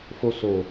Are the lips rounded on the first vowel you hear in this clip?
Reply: yes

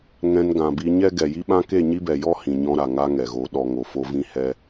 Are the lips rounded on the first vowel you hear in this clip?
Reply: no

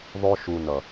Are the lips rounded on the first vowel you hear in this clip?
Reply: yes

